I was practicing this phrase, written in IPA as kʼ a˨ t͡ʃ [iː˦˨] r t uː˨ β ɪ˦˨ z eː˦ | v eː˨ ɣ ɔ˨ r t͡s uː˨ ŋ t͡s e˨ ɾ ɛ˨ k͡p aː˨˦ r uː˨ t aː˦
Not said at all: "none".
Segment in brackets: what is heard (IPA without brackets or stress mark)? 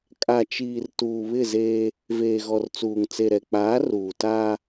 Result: iː˨